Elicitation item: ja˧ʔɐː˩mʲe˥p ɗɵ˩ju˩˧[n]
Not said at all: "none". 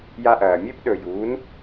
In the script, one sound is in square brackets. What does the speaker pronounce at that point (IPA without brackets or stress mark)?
n